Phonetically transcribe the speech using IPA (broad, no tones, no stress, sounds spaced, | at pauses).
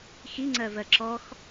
x i ŋ͡ǀ ɜ v ɜ ǁ ɔ x